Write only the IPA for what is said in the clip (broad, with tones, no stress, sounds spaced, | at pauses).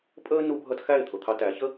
pʼ əː˦ n u˧ bʱ ʌ˧ t x æ˦˨ ɪ̯ t̪ʰ ʊ˨ t̪ʰ ɑ˧ t æ˨˦ ç ə˦